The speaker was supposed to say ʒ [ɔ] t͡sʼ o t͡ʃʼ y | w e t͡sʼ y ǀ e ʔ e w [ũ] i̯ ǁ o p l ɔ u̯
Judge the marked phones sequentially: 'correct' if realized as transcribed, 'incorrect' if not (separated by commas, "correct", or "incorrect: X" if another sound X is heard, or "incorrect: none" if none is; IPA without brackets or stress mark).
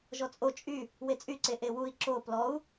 correct, incorrect: u